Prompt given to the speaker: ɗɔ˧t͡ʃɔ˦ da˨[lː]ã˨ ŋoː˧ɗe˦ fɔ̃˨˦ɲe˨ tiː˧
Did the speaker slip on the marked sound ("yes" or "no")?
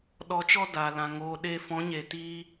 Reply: yes